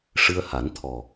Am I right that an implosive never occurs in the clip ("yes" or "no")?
yes